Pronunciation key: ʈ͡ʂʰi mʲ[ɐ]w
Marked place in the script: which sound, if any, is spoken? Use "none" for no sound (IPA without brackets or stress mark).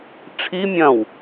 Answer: ɐ̃